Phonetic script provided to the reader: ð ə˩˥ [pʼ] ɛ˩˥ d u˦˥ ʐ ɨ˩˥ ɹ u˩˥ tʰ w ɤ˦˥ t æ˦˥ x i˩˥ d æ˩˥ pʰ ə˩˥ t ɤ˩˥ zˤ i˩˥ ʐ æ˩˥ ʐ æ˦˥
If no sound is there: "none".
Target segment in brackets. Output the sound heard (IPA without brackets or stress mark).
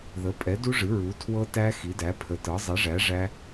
pʼ